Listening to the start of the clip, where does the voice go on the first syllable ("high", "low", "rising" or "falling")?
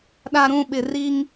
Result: low